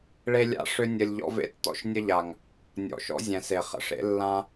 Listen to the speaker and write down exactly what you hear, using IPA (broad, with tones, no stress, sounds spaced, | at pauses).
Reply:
ɭ e˦ lʲ a̰˦ ʂ ʏ˦ nʲ ə˧ lʲ ʎ ɔ̰˦ v ḛ˦ tː ɔ̰˦ ʃ nʲ ə˦ ʎ a˨ ŋ | nʲ ɔ̰˨ ʃ ɔ̰˦ zʲ ɛ̃˨ s e˨ χ ə̰˧ ʂ ḛ˨˦ lː ã˦